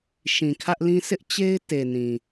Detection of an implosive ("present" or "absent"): absent